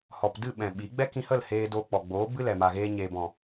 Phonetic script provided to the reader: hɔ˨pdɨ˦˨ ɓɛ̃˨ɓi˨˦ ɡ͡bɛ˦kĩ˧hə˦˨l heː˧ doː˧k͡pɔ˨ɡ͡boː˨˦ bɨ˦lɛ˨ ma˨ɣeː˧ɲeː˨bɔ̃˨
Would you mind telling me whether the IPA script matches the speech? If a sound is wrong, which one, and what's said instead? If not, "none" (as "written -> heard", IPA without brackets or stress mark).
none